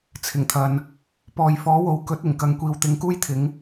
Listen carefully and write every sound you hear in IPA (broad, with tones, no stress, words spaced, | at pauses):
t͡sʰɪ˨˩ŋt̪ʰɐ˨n | pɔː˨jfɔː˨˥wo˨w kɵ˨˥t̚ɪ˨˩ŋkɐ˨˧ŋkʷiː˨w t̪ɪ˨˥ŋkuː˥jt̪ʰɪ˨˥ŋ